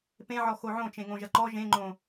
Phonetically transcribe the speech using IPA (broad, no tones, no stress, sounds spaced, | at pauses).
p ẽ ʕ ɔ x o ʕ õ t͡ʃ ẽ ŋ õ ʒ ɐ ǃ ɔ ʒ ẽ ŋ͡ǃ õ